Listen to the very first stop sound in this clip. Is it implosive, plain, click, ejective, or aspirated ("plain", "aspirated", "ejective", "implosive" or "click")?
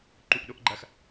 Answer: click